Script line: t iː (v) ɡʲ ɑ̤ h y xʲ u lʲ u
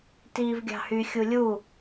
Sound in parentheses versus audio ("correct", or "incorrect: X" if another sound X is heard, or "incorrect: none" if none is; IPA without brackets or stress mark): correct